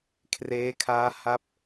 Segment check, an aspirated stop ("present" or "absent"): present